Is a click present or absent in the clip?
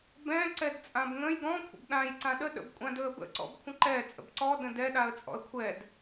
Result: present